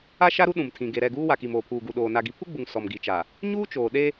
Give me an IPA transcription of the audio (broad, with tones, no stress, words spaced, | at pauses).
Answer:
a˦ʃa˦ɾu˦ ɗũ˨mtʰĩ˨ ɡe˨ ɾɛ˦˨ɡuː˦wa˨ki˨m oː˨pʰuː˨ɡu˨ɗoː˨ na˨ɡi˨˦pʰu˦ɡ͡bu˨ŋ sɔ˨mɡi˨t͡ʃa˨ | ɲuː˦ t͡ʃoː˨ ɗe˦